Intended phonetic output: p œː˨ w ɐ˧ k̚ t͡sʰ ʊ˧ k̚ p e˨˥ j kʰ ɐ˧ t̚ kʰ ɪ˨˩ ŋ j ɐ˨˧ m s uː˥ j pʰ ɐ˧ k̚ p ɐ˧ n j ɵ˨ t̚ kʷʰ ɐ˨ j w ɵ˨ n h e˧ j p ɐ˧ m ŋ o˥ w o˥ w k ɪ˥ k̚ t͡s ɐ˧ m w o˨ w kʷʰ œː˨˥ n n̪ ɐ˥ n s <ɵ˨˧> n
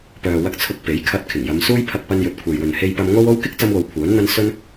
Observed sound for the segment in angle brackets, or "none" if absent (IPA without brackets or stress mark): ɵ˧